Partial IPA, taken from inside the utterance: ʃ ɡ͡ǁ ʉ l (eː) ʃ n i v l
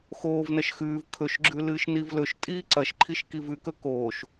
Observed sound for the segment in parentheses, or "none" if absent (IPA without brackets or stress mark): ɨː